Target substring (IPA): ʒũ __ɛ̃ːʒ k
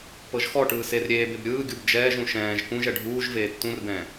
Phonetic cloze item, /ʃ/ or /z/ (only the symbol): ʃ